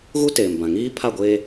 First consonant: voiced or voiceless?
voiced